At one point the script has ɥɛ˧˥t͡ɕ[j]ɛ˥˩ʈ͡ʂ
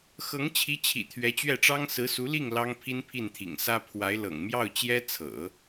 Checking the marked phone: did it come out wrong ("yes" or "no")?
yes